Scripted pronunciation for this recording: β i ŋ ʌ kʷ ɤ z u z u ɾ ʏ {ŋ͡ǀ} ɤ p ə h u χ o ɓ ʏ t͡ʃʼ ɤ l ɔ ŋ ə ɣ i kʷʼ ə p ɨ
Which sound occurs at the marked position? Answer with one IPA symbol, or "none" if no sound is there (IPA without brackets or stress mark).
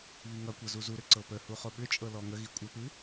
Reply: ǀ